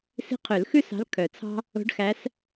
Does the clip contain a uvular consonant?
yes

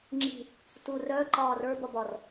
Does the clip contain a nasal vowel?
no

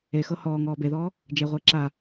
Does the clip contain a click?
yes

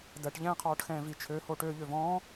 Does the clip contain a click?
no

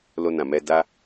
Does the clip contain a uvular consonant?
no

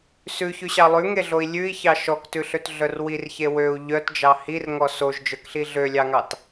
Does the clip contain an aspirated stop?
no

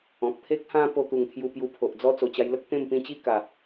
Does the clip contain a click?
no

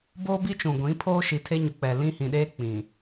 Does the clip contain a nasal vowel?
yes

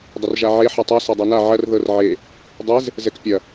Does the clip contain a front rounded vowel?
no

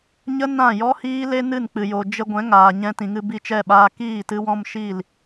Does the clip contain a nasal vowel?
yes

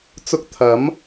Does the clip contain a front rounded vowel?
no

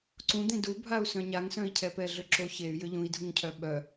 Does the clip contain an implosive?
yes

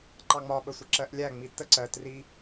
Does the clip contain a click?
yes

